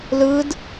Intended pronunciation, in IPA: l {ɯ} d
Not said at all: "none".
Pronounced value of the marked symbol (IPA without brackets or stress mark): ɯ